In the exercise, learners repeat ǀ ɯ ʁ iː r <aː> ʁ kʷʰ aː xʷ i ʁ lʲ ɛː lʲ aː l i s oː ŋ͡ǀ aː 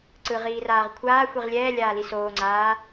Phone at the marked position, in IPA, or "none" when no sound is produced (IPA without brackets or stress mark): aː